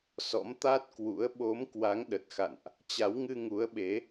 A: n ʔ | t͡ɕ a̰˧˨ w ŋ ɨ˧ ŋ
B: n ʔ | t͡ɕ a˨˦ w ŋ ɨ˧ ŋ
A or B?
B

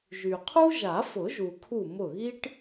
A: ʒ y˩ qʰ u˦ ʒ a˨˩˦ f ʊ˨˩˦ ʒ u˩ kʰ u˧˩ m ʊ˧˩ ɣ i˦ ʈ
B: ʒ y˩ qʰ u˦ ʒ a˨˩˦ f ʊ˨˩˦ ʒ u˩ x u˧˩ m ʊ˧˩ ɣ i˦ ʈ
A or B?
A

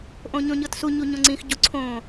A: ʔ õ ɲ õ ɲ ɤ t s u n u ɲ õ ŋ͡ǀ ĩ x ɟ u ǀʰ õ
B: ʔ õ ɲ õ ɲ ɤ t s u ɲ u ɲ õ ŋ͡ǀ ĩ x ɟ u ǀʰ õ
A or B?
B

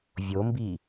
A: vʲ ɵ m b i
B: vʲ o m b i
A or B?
B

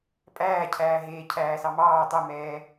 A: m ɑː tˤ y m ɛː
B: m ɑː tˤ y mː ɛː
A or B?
A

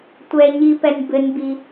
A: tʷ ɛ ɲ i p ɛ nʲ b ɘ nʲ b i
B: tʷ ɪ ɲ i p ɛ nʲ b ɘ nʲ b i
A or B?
A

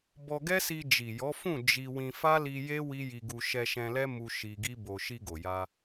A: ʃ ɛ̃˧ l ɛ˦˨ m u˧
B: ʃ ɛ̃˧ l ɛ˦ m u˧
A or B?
B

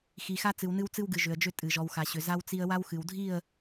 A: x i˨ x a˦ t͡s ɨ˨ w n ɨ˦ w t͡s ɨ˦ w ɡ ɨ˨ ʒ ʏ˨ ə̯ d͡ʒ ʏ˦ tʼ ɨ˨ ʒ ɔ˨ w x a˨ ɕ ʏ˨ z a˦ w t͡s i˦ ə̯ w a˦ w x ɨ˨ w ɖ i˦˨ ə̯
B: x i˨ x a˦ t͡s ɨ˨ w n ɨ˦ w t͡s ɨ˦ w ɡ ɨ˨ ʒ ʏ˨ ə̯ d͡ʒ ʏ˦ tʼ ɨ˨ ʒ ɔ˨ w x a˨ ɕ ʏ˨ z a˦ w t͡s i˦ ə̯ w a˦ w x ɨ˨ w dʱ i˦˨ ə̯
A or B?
B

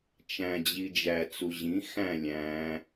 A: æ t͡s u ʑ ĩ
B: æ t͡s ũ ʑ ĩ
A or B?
A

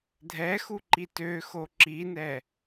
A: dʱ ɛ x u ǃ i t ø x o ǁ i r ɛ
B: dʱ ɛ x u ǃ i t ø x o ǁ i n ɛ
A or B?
B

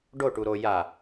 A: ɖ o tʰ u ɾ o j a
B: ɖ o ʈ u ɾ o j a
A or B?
B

